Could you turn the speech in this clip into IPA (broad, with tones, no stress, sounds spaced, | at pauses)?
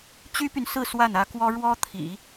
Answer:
t͡ɕ y˥ p y˨ n s ɹ̩˥˧ s w a˥˩ n ä˥ k w ɔ˥ ɻ w ɔ˥ t̪ʰ ḭ˨˩˦